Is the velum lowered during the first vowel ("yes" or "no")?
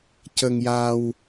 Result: no